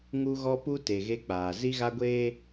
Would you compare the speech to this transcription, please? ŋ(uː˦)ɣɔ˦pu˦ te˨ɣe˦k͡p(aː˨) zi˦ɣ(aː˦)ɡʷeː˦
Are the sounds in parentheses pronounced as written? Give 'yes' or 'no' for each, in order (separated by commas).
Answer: no, yes, no